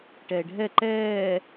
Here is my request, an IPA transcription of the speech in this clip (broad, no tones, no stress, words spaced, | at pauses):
ʈɛːɖʱɛ ǃɛː